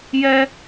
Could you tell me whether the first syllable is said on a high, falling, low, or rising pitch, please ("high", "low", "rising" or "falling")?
high